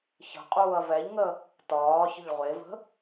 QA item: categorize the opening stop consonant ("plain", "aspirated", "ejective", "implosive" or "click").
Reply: ejective